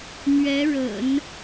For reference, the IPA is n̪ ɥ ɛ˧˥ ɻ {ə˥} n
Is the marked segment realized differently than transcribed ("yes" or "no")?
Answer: yes